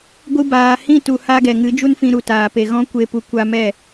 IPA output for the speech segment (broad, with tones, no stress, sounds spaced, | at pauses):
ɡʷ ɨ˧ b aː˨ h ĩ˦˨ t u˨ h a˧ ɡ ɛ˨ ŋ ɨ˨˦ d͡ʒ u˦ n f ĩ˧ ɾ u˨ t aː˨ p e˨ ɣ ɔ̃˦ kʷ e˦˨ p u˧ kʷ a˧ m ɛ˦˨